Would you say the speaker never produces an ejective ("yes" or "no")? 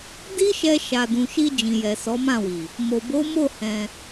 yes